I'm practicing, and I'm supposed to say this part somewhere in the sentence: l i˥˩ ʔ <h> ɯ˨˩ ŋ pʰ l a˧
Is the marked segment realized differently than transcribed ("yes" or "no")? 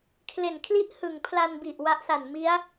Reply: no